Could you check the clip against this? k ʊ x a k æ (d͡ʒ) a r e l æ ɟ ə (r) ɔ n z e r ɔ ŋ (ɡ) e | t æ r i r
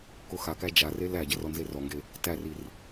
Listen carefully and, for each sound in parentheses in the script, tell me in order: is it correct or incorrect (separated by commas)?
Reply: correct, correct, correct